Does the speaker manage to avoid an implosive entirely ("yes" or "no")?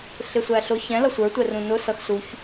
yes